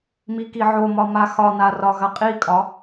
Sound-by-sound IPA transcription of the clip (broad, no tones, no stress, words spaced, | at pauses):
mikiʕomɒ maxɒna rɒɣɐqʼikʼɒ